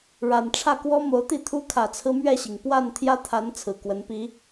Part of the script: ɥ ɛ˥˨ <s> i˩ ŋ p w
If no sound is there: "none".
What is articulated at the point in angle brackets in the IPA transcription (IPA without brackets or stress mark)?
ɕ